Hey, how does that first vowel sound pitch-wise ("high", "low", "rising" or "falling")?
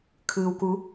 low